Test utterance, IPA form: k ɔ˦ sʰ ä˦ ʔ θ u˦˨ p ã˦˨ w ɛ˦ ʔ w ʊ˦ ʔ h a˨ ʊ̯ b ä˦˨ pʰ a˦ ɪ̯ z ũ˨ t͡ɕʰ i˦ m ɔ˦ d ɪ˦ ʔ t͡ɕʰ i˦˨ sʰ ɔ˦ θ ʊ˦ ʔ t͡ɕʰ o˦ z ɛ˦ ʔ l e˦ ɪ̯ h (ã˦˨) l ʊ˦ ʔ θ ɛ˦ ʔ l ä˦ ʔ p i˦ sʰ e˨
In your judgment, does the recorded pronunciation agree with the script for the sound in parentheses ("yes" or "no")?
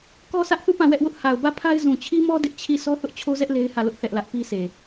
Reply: no